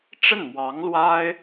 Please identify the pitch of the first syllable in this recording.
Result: falling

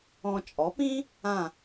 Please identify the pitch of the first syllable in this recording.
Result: low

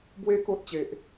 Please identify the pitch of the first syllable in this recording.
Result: high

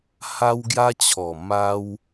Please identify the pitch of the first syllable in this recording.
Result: high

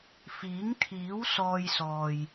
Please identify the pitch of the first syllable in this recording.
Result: rising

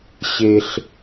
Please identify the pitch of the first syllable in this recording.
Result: high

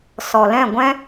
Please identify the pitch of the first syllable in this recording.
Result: low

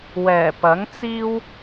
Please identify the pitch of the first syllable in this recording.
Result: low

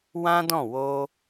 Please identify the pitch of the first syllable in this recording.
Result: high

